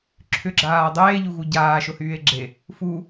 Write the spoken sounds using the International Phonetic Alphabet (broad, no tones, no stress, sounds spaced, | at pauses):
ǁʰ ʏ ɡ͡ǁ aː dˤ eː ʎ u ɣ u ɟ aː ʃ ʊ h yː e̯ ɡ͡ǁ e | f u